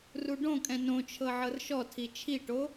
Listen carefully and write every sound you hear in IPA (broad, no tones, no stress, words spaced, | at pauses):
ruɖõkʼɛ̃ nõt͡ʃʰɤ ʕɤrʃɔtʰi t͡ʃʰiʈo